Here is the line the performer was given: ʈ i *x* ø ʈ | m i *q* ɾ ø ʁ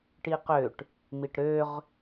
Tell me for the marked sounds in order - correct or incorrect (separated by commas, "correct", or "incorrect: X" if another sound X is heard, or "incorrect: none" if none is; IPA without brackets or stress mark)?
incorrect: q, incorrect: ʈ